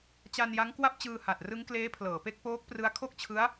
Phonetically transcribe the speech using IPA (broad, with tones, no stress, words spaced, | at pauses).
t͡ɕa˧nja˦˥ŋ kwa˥˩p̚t͡ɕɯː˧ha˨˩t̚ rɯ˦˥ŋ kleː˦˥pʰlɤː˩˦pe˦˥k̚ poː˦˥k̚prɯ˦˥a̯ kʰo˥˩k̚t͡ɕʰɯ˦˥a̯